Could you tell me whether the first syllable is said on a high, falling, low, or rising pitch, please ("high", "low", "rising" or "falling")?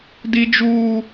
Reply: high